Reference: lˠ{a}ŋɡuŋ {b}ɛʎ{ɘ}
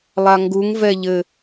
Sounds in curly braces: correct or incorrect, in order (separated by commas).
correct, incorrect, correct